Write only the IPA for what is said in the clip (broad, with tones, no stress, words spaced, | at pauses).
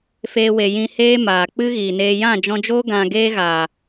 feː˦we˧jĩ˦ heː˦maː˨ k͡pɨ˦ɣiː˨neː˧ jã˦˨d͡ʒɔ̃˧d͡ʒoː˦ ɡã˧ ɡeː˦ ɣaː˨